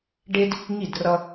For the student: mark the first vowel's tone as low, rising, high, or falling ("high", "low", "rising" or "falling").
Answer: high